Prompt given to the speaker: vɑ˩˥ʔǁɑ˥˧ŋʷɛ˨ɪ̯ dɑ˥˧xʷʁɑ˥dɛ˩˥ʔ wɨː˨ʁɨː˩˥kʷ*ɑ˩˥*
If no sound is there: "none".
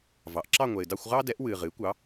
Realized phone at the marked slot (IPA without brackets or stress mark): ɑ˩˥